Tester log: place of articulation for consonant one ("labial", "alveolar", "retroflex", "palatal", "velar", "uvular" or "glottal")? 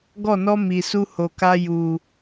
velar